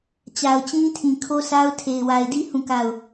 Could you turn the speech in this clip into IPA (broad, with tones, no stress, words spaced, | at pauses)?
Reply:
t͡ɕa˨ʊ̯t͡ɕĩ˦tʰĩ˨ kʰo˦sa˦ʊ̯ tʰe˨ɪ̯ wa˨ɪ̯di˦ hũ˦˨ka˦˨ʊ̯